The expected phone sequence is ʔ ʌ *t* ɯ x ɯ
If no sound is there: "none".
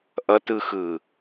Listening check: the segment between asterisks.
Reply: t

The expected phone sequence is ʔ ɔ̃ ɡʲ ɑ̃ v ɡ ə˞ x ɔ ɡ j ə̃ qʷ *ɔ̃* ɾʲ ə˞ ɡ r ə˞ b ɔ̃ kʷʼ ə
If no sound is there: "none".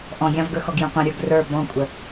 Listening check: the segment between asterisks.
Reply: ə̃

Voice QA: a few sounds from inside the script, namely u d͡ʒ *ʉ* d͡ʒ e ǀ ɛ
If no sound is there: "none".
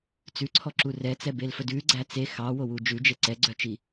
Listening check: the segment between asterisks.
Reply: ʉ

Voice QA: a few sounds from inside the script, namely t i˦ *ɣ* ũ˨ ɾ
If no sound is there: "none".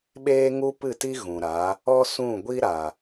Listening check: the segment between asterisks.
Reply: ɣ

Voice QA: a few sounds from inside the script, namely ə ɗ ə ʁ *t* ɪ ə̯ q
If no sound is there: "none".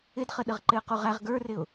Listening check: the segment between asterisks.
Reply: ǃ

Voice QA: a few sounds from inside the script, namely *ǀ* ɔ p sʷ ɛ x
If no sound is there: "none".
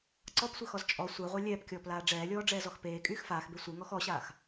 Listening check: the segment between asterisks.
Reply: ǀ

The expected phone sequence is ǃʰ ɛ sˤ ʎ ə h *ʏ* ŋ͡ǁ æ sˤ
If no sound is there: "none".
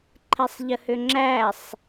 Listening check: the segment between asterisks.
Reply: ʏ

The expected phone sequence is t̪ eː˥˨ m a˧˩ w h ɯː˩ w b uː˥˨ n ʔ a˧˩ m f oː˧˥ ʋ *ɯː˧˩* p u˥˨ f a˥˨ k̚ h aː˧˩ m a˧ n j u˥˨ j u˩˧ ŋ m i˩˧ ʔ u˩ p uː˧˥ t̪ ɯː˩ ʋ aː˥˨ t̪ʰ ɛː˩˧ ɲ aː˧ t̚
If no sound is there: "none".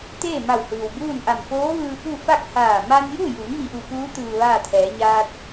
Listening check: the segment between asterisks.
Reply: ɯː˧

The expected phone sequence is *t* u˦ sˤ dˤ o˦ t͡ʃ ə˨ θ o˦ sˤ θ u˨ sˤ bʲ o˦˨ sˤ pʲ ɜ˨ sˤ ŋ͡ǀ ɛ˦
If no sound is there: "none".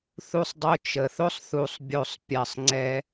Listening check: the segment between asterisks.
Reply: θ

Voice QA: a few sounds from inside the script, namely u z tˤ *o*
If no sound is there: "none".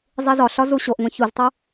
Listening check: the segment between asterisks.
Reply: u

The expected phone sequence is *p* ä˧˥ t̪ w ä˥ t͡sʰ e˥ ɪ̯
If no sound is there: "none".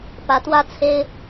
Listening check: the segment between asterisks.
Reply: p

